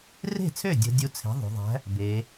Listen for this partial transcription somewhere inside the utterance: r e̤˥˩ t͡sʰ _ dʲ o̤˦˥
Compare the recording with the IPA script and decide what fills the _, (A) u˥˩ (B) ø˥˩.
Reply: B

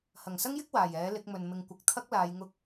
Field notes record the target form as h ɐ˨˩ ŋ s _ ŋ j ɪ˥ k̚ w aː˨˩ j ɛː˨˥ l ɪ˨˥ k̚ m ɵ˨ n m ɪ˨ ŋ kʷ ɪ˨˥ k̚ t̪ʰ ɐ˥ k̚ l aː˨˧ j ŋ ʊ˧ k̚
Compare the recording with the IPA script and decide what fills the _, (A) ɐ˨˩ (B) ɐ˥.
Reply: B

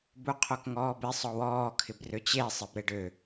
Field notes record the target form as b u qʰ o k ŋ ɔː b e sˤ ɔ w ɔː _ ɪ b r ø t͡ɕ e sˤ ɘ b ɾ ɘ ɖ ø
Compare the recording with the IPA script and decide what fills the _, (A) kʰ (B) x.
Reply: A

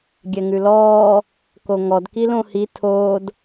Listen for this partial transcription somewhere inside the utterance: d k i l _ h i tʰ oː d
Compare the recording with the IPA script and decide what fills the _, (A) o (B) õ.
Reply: B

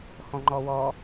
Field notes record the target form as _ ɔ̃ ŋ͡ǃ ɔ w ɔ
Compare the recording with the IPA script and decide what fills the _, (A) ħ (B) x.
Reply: B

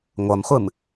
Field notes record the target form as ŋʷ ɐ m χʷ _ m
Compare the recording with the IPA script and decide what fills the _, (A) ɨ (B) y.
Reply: A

